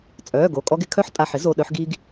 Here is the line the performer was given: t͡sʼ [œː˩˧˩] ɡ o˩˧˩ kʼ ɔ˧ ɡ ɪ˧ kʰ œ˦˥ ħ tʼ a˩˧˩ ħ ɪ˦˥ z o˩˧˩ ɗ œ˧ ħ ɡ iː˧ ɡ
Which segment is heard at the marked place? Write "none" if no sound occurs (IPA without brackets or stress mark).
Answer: œː˩˧˩